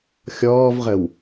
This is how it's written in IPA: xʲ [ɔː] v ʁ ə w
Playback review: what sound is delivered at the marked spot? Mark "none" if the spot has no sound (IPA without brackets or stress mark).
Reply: ɔː